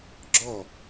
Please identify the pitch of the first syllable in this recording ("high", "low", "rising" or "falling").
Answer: falling